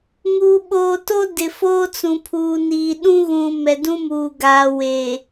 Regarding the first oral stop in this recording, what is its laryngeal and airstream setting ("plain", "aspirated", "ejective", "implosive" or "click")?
implosive